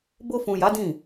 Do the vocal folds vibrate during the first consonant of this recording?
yes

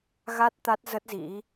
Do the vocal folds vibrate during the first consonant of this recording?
yes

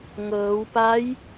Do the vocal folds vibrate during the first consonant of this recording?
yes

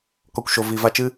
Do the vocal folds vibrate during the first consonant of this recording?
no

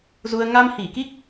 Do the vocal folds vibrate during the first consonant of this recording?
yes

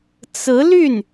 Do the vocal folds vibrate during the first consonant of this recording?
no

